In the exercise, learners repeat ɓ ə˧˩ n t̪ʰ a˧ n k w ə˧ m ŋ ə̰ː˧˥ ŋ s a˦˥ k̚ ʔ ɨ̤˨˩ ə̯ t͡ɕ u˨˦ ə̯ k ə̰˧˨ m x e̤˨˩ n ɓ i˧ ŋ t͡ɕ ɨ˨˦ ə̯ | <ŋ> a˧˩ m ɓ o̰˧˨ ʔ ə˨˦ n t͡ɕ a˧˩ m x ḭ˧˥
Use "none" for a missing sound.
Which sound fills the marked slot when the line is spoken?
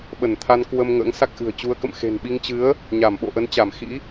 ɲ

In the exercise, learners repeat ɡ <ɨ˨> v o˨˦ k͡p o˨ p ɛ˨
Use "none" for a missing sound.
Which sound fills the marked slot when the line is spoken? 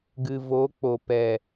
ɨ˨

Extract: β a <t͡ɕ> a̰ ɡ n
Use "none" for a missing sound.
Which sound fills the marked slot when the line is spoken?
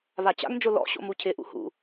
t͡ɕ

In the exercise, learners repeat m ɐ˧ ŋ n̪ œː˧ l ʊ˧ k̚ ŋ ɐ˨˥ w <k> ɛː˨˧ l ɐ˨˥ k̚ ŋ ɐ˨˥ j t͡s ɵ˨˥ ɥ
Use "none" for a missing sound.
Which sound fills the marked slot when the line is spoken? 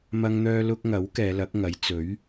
k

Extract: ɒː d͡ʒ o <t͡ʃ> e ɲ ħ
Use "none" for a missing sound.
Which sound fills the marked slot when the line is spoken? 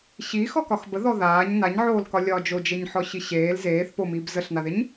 d͡ʒ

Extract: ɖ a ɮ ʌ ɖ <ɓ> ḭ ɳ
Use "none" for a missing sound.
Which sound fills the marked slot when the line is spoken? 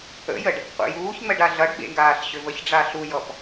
ɓ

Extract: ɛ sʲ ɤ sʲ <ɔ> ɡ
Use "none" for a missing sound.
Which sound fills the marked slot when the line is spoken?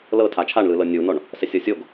o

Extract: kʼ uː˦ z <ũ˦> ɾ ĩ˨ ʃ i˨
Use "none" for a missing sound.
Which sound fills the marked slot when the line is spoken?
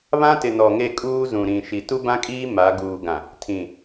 ũ˨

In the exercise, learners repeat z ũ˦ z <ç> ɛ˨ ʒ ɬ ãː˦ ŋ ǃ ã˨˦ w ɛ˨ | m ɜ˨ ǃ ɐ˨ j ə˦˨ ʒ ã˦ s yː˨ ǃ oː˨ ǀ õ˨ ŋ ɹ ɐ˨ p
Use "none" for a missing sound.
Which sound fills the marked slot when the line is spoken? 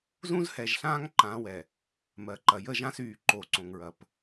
h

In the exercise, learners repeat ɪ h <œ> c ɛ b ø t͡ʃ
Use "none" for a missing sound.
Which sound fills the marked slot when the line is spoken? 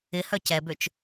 œ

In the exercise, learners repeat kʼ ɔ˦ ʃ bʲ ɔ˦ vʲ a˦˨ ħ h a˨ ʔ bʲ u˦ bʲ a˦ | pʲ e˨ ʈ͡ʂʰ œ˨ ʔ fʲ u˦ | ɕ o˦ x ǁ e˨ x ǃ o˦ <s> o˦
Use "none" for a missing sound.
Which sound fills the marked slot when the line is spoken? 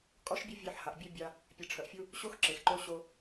ɕ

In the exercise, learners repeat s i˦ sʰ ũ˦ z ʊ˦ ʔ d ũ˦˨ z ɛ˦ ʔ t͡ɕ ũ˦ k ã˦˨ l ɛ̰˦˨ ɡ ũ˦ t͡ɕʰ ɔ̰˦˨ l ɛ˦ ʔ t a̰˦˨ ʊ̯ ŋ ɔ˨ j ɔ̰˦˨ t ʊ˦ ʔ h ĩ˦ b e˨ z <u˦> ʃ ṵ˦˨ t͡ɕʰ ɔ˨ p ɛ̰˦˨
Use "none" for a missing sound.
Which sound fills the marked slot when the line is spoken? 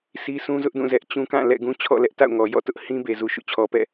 u˨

